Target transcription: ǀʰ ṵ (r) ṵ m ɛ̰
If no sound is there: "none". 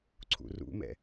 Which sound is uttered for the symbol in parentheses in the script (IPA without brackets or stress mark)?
r